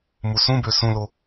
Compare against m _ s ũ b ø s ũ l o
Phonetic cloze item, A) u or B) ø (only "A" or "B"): A